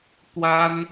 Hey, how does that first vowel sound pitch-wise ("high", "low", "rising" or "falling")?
high